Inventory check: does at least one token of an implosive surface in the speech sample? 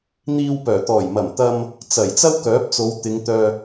no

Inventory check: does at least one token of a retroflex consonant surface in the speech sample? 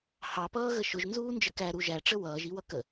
yes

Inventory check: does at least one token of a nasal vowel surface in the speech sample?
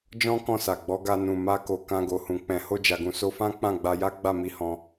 yes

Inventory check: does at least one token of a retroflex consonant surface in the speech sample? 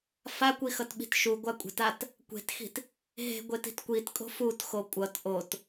no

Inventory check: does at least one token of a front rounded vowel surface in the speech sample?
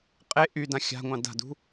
yes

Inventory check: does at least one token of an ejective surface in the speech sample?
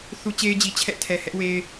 no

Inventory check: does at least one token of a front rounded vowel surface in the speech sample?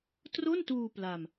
no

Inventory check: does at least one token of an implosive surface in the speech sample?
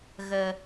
no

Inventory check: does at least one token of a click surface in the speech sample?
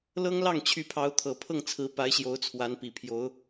no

